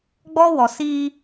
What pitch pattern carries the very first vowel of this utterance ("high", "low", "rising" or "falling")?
high